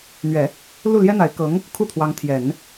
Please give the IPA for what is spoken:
n̪ ɥ ɛ˨˩˦ | l u˥˩ l j ɛ˥ n̪ a˧˥ ɪ̯ k ɤ˧˥ ŋ | kʰ u˥˩ t̪ʰ w ɑ˧˥ ŋ t̪ʰ j ɛ˨˩˦ n

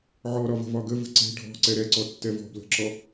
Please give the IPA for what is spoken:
ʕ ɔ ɾ ɒ v ə̤ v ɒ ɡ ə v ə̤ ǀ e̤ ɖʱ ɔ̤ ǀ ɛ ɾ ɛ ǀ ɔ tː ɛ v ɔ̤ b l ə̤ ǁ ɔ

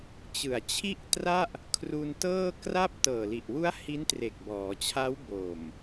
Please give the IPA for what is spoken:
t͡ɕ ɯ˨˩ a̯ t͡ɕʰ i˥˩ ʔ t r a˥˩ ʔ | kʰ r u˧ n t ɤː˥˩ k r a˥˩ p̚ t ɤː˨˩ l i˨˩ ʔ w u˦˥ a̯ h i˦˥ n t r e˨˩ k̚ b ɔː˩˦ t͡ɕʰ a˦˥ w b o˨˩ m

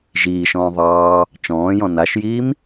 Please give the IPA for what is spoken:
ʒ iː ʃ ɔ̃ː ðˤ ɑː | t͡ʃ ɔ̃ː j ɔ̃ n a ʃ j iː m

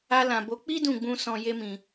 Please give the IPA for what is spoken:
a˧ l ã˨ b o˨˦ k͡p i˦ d ũ˦˨ ɡ͡b ũ˧ s ɔ̃˨ j e˧ m ĩ˨

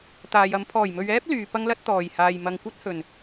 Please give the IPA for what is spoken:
t̪ aː˨ j ɐ˨˧ m pʰ ɔː˨˩ j m ɵ˨ ɥ ɛː˥ p̚ l yː˨ p ɐ˥ ŋ l ɐ˥ t̚ t̪ ɔː˨˩ j h aː˨ j m ɐ˨ ŋ kʷ ɐ˥ t̚ h ɵ˨˩ n

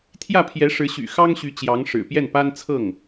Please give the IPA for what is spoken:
t̪ʰ j ä˥˩ pʰ j ɛ˧˥ ʂ ɻ̩˧˥ ɕ y̰˨˩ x ɑ˥ ŋ ɕ y˧˥ t͡ɕ j ɑ˧˥ ŋ ʂ ɻ̩˨˩ p j ɛ˥˩ n p a˥ n t͡sʰ ɤ˥˩ ŋ

